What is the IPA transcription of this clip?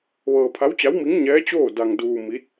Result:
ʋɤː˧pʰa˧˥wt͡ɕa˧˥wmi˧˥ŋ ɲɛː˧˥t͡ɕoː˥˨ da˧ŋduː˧ mi˧˥t̚

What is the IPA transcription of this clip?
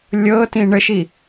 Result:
lʲɤtĩ ɳəʃi

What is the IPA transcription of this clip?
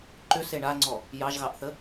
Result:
ǃʏse ɳaŋ͡ǀɔ | jɑʒɣɑʔθə

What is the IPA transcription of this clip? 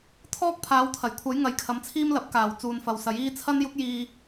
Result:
t̪ʰɔː˥k̚ pʰaː˨˧wt̪ʰɐ˨˩jkʷʰɐ˨˥j ŋɐ˨˥jkʰɐ˨˧mt͡sʰiː˥mlɐ˨˥p̚ kaː˨˩w t͡suː˨nfɐ˨wsɐ˨˥jiː˥ t͡sʰɐ˥njʊ˥k̚jiː˧

